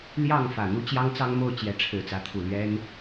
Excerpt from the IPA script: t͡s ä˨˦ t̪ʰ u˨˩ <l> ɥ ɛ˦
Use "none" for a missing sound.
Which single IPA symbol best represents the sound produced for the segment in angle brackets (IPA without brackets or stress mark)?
l